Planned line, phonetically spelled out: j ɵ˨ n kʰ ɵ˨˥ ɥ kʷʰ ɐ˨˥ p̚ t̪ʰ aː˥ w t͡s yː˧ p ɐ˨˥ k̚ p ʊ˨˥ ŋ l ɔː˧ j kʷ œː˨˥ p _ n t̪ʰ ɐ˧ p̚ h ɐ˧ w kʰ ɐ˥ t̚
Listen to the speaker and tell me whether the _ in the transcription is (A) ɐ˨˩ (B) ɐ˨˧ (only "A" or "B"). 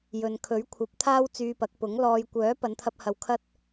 B